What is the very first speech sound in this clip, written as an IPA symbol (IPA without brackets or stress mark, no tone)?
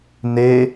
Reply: n